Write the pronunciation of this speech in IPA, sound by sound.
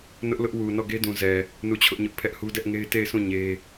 n ʊ˦ ʔ l ʊ˦ ʔ w u˨ n ɔ˦˨ ɡ e˦ d ũ˨ z ɛ˨ | n u˦˨ t͡ɕʰ ʊ˦ ʔ ɲ ʊ˦ ʔ pʰ ɛ˦ ʔ h u˦ d ɛ˦ ʔ ŋ e˦ ɪ̯ t e˦˨ ɪ̯ sʰ ũ˦˨ ɲ e˦

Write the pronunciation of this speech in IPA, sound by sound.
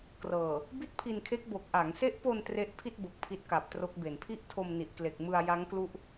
k r ɤː˨˩ | b i˥˩ t̚ pʰ i˧ n kʰ e˦˥ k̚ b o˨˩ k̚ ʔ a˩˦ ŋ s e˦˥ ʔ p o˧ n t r e˦˥ ʔ pʰ i˥˩ t̚ b o˨˩ k̚ pʰ i˦˥ t̚ k a˨˩ p̚ t r o˦˥ k̚ b e˨˩ n pʰ i˥˩ ʔ tʰ o˧ m n i˨˩ ʔ k l e˨˩ k̚ m ɯ˧ a̯ j a˦˥ ŋ k l u˦˥ ʔ

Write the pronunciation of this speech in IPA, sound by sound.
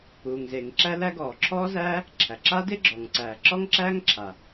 uː˩ ŋ z e˩ ŋ ǁ æ˥ l æ˥ ɡ ɔː˩ ǁʰ ɔː˥ z æː˥ | ǁʰ æ˩ ǁ a˥ d e˥ ɡ͡ǁ ɔː˩ ŋ ǀ æː˩ ǁ ɔ˥ ŋ ǁ æː˥ ŋ ǁʰ a˩

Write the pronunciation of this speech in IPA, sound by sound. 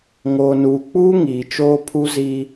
ŋ oː˨ n uː˨ k͡p uː˦ ŋ iː˨ t͡ʃ oː˦ pʰ u˦ z iː˦

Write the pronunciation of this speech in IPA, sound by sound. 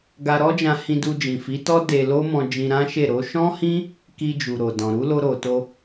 ɡ a˧ ɾ ɔ˦ d͡ʒ ã˧ h ĩ˧ d u˧ d͡ʒ ĩ˨ f i˨˦ t ɔ˦ d e˧ l o˦ m ɔ̃˧ d͡ʒ ĩ˧ ɾ ã˦ ʃ e˦˨ ɾ o˨˦ ʃ ɔ̃˦ h ĩ˦ | k i˧ d͡ʒ u˨ ɾ o˨ d ɔ̃˨ ɾ u˨˦ l o˧ ɾ o˨ t o˧

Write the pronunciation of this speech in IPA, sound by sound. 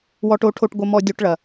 w ɔ˧ ʈ o˧ ʈʰ o˧ ʈ ɡʷ ɐ˧ m ɔ˧ dʲ o˧ ʈ ɭ ɐ˩

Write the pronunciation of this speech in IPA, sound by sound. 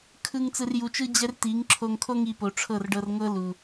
kʰ ɯ˧ ŋ t͡s ɯ˨ r j u˨ t͡ʃ ɯ˧ d͡ʑ ɛ˦ r t i˨˦ ŋ ǁʰ o˧ ŋ kʰ o˦ ŋ i˧ p o˨ ʈ͡ʂʰ ɤ˦˨ r ɖ ɤ˧ r ŋ ɤ˦ l u˨

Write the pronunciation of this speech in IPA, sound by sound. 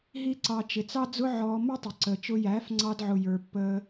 ɦ i˦ ǀ ɑ˧ t͡ʃ ɪ˨ t͡s ɑ˦ d͡z ʊ˦ ʕ ɔː˧ m ʌ˦ tˤ ʊ˨ ǀ əː˨ t͡ʃ ʊ˧ j æː˨˦ f ŋ͡ǀ ɑ˧ d ʕ ʊ˨ j ə˞˨ pː əː˧

